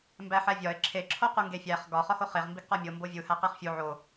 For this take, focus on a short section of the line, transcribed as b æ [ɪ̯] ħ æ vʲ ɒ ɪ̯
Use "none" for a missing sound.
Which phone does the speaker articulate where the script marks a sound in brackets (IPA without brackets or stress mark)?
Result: none